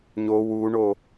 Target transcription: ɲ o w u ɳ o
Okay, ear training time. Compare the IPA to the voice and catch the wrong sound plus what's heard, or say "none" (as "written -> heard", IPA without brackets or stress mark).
none